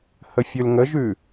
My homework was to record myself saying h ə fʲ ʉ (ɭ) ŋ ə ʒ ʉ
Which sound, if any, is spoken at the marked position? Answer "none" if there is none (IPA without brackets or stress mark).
l